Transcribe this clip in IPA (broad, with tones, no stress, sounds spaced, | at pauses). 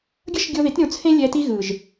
ɡʲ ʌ˦ ʃ ɡʲ o˧ ð i˨˦ t ɾʲ õ˧ t͡sʰ ẽ˦ lʲ ɛ˧ t i˦ ɣ ɯ˨ ʒ